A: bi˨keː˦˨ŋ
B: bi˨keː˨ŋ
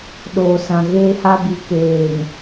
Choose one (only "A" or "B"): B